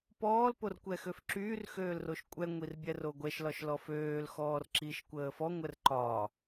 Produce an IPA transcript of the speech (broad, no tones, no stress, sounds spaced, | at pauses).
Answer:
p ɔː l p o r kʷ ɛ x ø f ǁ yː r x øː l r o ʃ kʷʼ ɛ ŋʷ i r bʲ ɛ r o ɡʷ ɛ ʃ l ɒ ʃ l ɔ f øː l x ɔː r ǁ i ʃ kʷ əː f ɔ ŋʷ ɛ r ǃ ɒ